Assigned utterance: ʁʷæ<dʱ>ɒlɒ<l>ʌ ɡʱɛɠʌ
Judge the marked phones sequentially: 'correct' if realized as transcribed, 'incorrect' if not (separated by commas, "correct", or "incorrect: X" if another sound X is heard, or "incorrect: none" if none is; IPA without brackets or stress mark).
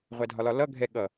correct, correct